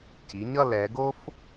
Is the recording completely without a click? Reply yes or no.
yes